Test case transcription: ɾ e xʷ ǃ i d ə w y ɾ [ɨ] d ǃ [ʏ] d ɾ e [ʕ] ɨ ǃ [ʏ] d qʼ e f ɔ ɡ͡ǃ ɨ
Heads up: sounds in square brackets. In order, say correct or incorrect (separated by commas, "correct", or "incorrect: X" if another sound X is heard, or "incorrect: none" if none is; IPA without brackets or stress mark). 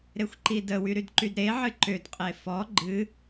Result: incorrect: y, incorrect: y, correct, correct